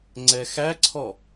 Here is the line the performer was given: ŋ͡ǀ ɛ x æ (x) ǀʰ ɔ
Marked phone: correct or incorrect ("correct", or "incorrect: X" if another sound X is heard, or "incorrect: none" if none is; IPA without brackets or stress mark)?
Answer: incorrect: none